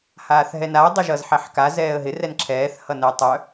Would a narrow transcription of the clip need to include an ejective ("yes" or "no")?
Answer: no